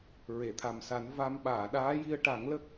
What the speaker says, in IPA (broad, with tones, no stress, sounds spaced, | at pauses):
ɹ e˨˩˨ t̪ʰ a˨˩ m s a˨˩˦ n v a˧ m ɓ aː˨˩˨ ɗ aː˧˥ j i˧ ə̯ ʈ a˨˩˦ ŋ l ə˦˥ k̚